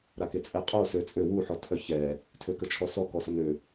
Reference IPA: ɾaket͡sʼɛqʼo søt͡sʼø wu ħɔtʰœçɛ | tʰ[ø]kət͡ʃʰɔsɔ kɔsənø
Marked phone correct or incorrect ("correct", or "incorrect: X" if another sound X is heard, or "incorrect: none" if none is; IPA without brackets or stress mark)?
correct